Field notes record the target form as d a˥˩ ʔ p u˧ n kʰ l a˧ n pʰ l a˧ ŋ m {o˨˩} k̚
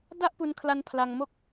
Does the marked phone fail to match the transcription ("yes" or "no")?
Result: yes